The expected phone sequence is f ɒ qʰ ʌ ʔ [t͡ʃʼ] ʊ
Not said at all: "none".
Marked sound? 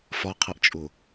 t͡ʃʼ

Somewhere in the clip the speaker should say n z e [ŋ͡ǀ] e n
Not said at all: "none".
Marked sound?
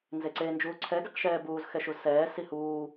ǀ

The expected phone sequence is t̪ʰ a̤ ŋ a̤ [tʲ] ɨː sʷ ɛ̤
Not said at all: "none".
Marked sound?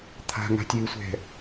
tʲ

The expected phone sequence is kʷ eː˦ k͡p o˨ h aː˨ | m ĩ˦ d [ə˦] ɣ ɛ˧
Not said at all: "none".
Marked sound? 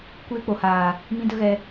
ə˦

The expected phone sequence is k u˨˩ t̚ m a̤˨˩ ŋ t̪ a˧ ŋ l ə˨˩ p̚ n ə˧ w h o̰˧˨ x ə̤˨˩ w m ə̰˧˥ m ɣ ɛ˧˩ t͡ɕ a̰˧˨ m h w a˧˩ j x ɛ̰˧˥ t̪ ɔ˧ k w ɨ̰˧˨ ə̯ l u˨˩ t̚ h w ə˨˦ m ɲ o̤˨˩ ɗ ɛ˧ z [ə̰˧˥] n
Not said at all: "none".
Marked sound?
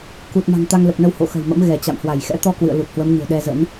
ə̰˧˥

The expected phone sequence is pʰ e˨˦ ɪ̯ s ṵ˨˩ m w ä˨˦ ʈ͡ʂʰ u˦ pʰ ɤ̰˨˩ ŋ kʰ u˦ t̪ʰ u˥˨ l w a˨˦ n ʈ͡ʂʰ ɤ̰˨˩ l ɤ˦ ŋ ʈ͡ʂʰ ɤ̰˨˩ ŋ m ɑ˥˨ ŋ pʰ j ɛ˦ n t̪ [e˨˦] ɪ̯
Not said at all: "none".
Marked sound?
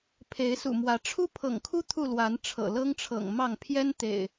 ḛ˨˩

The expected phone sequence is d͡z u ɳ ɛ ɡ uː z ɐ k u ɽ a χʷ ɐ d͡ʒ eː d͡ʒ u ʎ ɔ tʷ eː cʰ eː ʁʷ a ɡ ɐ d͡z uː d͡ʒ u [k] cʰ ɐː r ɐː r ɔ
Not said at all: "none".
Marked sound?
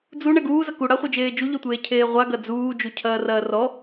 none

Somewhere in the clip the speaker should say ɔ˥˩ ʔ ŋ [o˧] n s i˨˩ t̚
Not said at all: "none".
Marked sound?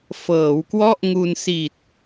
u˧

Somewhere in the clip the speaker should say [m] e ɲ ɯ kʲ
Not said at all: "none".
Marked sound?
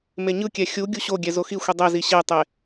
m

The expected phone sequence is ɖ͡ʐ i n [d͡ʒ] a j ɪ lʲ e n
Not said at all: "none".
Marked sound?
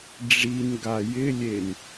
ɡ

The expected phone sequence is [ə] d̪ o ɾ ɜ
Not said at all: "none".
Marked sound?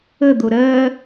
ə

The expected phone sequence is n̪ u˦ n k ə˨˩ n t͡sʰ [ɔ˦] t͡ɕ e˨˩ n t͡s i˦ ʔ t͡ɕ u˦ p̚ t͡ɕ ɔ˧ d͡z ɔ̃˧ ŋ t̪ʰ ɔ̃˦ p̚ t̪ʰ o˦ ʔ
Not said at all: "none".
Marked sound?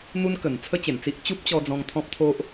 ə˦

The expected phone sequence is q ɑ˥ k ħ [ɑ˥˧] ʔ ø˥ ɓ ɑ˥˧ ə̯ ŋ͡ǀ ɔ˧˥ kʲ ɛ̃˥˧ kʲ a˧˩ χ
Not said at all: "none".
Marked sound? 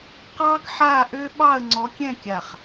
a˥˧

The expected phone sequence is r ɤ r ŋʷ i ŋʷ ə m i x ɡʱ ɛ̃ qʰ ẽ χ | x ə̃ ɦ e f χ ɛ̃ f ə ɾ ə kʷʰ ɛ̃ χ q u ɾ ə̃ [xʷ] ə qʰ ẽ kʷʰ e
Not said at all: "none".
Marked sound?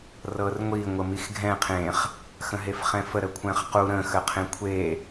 x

